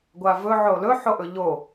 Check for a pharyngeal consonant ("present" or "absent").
present